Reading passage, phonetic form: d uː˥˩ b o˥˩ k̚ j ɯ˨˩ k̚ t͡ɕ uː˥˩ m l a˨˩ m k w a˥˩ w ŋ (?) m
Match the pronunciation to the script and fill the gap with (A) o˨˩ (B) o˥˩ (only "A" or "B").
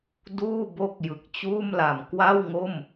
B